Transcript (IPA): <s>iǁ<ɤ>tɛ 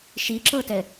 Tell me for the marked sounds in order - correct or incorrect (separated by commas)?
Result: incorrect, correct